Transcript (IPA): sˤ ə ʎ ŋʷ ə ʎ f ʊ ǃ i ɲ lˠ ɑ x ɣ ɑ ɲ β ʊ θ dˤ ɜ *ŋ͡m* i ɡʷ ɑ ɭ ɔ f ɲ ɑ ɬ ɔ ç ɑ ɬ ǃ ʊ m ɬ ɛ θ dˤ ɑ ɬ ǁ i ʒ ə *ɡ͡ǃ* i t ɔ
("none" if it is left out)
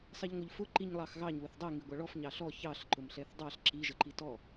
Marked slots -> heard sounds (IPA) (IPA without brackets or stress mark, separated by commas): ŋ, ǃ